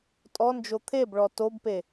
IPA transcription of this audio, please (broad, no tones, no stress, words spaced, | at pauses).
tʼɔnd͡ʒo t̪ʰebɭɔ tobpe